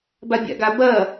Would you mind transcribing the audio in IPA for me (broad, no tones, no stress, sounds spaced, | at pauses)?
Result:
b a bʲ a̰ ɡ a b ɐ